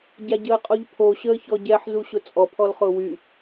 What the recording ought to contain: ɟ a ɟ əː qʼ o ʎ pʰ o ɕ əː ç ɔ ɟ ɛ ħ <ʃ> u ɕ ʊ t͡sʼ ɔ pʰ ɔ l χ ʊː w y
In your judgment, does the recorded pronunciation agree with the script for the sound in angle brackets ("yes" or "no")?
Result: no